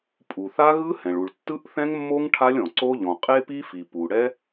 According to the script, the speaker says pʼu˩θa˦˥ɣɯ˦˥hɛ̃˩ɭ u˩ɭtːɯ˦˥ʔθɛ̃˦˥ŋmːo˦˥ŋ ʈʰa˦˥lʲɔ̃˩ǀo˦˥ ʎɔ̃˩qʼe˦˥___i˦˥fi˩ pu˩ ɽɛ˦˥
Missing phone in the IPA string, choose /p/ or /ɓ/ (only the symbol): p